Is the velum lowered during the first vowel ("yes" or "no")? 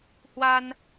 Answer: no